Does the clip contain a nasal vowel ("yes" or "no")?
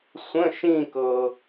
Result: yes